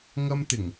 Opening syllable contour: high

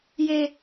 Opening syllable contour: low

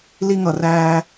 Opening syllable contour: high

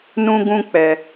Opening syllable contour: high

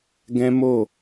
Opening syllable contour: high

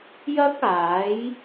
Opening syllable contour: high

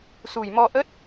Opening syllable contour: low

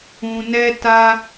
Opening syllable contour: low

